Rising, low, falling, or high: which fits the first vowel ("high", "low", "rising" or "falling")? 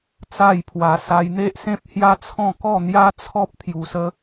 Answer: falling